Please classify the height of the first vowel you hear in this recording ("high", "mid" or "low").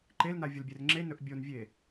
mid